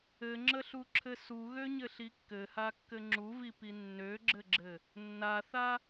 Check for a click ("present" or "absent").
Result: present